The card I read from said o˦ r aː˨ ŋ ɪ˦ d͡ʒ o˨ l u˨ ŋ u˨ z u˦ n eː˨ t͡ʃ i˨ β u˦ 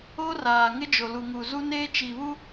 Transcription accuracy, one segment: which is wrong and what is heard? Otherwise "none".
eː˨ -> eː˦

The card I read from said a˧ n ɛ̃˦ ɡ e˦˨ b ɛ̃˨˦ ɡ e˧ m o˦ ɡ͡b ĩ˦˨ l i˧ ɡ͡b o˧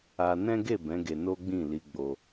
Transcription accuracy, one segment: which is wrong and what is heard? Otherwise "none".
m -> n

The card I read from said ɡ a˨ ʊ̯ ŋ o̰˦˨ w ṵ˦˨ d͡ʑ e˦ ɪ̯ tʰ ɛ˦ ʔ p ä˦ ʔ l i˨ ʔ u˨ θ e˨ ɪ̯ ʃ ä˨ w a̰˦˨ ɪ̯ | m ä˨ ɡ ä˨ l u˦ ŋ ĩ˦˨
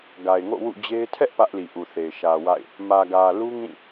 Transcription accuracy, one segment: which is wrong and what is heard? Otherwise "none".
ʊ̯ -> ɪ̯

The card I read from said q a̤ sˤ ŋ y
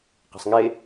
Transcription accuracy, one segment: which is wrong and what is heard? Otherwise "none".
y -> e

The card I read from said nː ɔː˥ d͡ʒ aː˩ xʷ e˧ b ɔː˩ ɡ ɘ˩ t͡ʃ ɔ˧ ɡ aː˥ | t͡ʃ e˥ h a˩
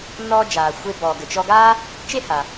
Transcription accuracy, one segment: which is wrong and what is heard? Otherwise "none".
none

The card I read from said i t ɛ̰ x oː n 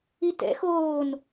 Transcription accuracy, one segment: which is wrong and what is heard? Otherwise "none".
none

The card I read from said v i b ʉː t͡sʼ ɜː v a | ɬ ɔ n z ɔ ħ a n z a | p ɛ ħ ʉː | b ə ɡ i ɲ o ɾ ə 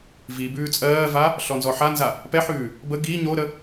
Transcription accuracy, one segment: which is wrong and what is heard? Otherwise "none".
none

